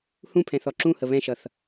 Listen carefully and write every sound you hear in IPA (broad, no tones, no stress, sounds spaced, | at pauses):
h ũ pʰ ɛ̃ θ ɔ ǁ ũ h ə β ɛ̃ ʃ ʌ θ